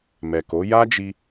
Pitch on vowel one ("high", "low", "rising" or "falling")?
low